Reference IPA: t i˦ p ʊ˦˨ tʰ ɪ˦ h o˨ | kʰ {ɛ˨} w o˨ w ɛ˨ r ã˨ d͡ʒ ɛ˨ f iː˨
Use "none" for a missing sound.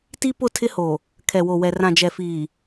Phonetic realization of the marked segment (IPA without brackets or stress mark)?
ɛ˨